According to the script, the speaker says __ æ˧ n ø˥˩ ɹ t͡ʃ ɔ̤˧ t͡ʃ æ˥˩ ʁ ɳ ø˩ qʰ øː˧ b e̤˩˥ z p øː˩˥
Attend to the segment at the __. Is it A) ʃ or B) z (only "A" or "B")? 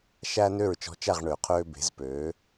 A